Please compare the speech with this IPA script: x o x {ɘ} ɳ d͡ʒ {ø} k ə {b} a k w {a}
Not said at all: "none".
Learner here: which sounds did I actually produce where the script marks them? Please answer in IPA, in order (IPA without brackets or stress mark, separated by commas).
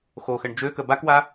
ɘ, ø, b, a